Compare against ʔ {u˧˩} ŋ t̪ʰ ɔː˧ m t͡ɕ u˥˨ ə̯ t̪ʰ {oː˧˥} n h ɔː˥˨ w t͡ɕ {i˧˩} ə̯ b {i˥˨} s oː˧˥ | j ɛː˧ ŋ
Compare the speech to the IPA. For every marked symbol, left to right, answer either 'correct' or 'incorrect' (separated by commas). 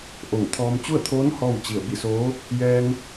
incorrect, correct, correct, correct